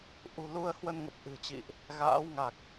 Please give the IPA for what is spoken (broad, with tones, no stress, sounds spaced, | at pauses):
ʔ ṳ˨˩ l u˧ ə̯ h w ə˧ n ŋ ə˨˩ p̚ ʔ ɨ̤˨˩ t͡ɕ ḭ˧˨ ʔ | ɣ a̰ː˧˥ w ŋ a˨˩ k̚